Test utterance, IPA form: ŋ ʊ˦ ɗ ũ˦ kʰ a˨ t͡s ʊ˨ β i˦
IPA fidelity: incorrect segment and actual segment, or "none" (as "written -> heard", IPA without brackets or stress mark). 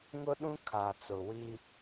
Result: β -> w